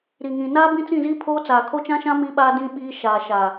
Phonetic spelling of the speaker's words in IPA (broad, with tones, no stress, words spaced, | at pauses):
ɾi˨ŋĩ˨ naː˦bĩ˦t͡sĩ˦˨ziː˦ pʰoː˦t͡saː˨ kʰo˦t͡ʃã˦ʃã˦ mi˦ɓaː˦dĩ˦ ɓiː˦ ʃaː˨ʃa˨